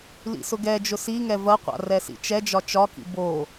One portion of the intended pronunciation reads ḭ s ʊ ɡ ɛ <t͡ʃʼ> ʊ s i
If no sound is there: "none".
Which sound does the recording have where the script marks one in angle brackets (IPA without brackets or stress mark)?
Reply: d͡ʒ